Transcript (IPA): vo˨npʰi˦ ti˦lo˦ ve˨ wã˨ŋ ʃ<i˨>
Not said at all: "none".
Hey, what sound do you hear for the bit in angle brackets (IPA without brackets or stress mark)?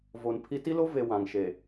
e˨